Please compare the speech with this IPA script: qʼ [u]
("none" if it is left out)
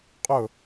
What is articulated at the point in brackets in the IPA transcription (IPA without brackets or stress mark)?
ʊ